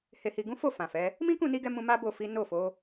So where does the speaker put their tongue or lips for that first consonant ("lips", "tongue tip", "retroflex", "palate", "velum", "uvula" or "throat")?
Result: throat